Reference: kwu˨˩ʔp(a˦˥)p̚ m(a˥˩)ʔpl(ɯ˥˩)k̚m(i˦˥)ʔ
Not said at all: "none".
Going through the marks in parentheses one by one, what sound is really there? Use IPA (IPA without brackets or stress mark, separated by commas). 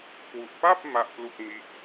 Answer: a˥˩, a˥˩, u˥˩, i˦˥